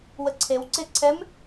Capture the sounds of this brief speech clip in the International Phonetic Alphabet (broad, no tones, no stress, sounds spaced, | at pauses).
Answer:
w ə ǀʰ e w ǀ e ǀʰ ɛ m